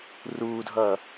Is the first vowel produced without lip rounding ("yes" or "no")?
no